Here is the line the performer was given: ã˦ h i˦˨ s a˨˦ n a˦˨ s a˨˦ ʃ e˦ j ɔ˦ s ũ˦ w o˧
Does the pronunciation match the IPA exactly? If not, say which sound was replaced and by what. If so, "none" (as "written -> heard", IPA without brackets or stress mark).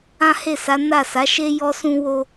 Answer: i˦˨ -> e˦˨